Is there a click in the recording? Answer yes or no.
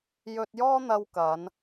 no